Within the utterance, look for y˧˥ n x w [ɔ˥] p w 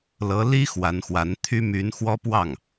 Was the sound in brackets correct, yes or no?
yes